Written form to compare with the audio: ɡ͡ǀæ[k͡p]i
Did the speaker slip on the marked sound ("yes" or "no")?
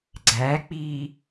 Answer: no